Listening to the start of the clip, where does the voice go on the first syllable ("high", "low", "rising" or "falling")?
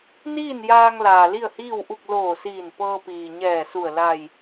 falling